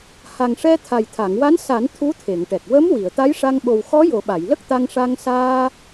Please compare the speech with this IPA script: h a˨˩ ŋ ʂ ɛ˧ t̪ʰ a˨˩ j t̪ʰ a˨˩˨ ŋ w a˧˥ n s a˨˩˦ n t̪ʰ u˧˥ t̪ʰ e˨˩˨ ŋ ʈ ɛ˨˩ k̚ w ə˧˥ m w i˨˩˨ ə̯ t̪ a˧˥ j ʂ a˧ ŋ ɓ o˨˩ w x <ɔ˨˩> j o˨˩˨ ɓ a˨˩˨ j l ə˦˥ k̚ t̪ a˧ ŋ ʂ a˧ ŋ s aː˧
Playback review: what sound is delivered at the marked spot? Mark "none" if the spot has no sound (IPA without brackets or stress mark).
ɔ˧˥